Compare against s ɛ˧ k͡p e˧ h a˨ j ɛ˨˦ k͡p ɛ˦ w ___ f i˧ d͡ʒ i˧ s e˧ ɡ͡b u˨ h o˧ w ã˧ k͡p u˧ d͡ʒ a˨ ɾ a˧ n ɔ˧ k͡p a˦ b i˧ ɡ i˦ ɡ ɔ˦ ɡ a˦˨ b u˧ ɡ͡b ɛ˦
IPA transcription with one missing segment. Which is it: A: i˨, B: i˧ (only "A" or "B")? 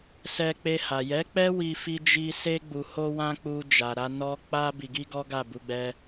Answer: B